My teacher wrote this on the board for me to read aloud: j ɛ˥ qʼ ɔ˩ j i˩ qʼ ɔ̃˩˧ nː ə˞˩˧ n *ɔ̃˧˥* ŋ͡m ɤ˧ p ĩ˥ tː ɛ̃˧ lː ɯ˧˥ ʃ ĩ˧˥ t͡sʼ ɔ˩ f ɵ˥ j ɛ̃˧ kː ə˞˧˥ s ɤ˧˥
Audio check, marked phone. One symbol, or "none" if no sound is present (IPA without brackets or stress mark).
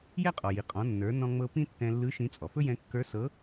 ɔ̃˧